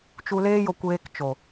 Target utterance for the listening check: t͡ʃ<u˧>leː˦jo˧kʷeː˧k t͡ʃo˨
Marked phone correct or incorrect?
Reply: correct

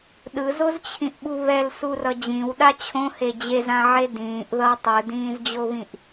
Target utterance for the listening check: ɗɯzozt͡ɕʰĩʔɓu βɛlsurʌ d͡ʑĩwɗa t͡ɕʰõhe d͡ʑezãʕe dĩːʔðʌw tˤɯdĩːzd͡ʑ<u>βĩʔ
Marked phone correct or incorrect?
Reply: incorrect: o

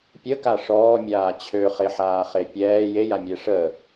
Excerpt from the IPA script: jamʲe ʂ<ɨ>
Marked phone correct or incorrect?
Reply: incorrect: ə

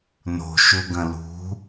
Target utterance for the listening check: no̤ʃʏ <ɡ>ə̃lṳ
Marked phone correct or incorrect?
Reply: correct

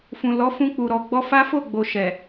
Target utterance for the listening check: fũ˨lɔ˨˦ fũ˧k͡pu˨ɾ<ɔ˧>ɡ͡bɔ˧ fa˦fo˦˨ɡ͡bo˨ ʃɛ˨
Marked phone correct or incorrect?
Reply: incorrect: ɔ˨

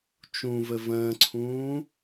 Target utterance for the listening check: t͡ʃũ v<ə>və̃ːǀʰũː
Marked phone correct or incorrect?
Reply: correct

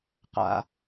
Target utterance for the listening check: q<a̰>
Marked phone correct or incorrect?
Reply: correct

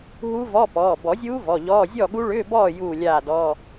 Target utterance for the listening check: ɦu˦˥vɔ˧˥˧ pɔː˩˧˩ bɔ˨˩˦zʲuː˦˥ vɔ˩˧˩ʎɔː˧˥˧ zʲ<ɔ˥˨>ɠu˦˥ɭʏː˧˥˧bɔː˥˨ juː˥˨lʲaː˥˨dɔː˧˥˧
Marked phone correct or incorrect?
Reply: correct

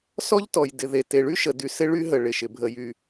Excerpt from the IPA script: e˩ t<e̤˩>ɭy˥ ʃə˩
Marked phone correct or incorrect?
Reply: incorrect: e˩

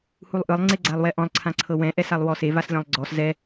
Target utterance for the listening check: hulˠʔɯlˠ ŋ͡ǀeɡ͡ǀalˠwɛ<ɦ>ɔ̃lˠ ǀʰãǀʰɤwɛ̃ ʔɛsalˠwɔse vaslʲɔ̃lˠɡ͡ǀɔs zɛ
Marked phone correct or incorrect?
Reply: incorrect: ʔ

